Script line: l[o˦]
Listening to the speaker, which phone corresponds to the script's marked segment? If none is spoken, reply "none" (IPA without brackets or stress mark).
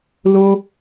o˦